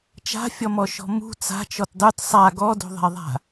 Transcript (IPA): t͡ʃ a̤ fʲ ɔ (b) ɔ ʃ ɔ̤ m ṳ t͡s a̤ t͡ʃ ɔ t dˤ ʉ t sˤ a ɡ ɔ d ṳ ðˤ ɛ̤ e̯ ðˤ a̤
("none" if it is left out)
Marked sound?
m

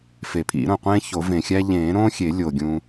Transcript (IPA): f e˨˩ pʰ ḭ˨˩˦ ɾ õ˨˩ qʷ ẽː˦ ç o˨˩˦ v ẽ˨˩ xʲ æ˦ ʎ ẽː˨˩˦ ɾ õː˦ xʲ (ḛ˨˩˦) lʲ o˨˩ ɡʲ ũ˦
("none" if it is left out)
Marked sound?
e˨˩˦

